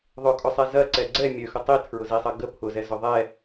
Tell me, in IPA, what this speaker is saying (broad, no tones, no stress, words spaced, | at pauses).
ðˤʊkʼʊsˤɛ zɐǀɛ ɡ͡ǀɛ mʲøxʊ tˤitʰɹʊzisˤɐ ɡə pʰʊzɛzʊ ðˤɛ